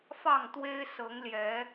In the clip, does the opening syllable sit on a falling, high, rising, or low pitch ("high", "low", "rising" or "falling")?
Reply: falling